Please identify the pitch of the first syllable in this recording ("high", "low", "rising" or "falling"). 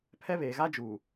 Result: high